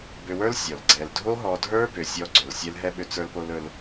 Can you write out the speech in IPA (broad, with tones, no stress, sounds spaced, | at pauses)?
b ʏ˧ w ə˞˦ l sʲ ɔ˨ l ɡ͡ǀ ɛ˨ l dʱ o˦ ɦ ɔ˧ dʱ ə˞˦ b ʏ˨ sʲ ɔ˧ ɡ͡ǀ ʏ˨ l sʲ ɛ˧ l ɦ ɛ˦ ɓ ʏ˧ t͡s ə˞˧ l p o˧ l ɵ˧ l